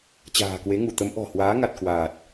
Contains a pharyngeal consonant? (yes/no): no